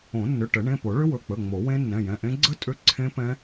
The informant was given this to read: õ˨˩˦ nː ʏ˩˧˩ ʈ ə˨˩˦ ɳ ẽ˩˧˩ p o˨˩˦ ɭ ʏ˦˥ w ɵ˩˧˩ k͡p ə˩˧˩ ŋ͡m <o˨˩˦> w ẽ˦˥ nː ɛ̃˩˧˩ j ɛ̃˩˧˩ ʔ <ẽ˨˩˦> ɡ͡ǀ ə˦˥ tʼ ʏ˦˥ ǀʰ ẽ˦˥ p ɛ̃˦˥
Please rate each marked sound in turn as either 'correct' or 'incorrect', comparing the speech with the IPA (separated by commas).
correct, incorrect